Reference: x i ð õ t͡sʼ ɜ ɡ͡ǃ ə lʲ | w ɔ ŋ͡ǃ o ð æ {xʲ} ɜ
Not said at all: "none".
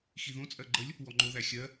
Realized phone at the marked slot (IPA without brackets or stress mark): xʲ